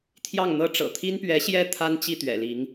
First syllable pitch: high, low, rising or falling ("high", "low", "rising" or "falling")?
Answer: falling